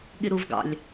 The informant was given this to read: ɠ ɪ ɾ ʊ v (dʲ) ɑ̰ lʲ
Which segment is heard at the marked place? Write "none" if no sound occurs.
ɡ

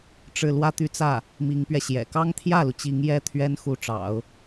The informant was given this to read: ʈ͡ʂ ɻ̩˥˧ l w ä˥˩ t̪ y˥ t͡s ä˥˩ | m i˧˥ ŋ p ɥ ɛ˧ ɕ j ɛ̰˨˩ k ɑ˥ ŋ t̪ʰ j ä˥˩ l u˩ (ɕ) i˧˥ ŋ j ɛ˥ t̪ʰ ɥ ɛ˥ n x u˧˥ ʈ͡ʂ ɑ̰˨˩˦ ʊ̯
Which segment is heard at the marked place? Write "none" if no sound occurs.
t͡ɕ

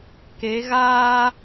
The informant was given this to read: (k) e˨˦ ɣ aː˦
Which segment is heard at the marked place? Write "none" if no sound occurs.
k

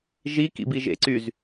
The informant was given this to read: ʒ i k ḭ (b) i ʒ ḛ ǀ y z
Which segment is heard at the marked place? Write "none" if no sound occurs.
b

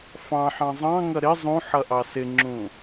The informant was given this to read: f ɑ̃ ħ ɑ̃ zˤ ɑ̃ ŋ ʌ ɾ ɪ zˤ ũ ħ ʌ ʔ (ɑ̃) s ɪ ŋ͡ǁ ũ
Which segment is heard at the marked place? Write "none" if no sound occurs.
ɑ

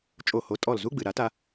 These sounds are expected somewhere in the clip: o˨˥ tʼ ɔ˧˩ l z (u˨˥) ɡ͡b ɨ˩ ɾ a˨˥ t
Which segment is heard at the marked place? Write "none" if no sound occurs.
u˧˥˧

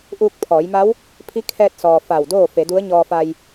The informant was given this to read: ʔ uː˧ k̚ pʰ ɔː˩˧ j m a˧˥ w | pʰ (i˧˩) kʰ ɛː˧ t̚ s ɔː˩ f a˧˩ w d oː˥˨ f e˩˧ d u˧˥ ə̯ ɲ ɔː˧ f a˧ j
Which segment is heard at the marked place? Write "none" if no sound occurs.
i˧˥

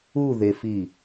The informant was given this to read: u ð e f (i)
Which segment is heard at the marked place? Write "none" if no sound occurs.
i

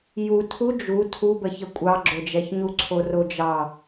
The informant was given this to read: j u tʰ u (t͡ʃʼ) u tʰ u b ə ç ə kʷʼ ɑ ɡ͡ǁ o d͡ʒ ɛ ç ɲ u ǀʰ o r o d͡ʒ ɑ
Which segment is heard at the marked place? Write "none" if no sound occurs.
d͡ʒ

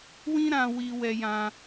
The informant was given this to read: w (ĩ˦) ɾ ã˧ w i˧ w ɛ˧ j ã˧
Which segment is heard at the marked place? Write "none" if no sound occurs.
ĩ˦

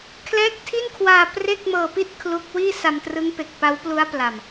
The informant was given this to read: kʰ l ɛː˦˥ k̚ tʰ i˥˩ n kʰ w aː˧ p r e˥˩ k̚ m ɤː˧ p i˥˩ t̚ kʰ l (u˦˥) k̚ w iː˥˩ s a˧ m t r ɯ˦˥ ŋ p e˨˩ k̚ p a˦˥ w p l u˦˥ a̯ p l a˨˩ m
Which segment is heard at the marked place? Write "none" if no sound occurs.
u˦˥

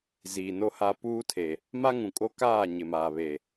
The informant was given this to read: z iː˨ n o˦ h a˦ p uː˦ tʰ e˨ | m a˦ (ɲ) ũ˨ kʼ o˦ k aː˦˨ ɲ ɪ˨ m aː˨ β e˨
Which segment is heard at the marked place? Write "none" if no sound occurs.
ŋ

